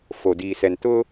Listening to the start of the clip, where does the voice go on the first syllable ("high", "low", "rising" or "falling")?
low